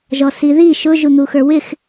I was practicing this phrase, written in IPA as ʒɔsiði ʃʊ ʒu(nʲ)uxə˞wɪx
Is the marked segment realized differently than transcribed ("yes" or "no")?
yes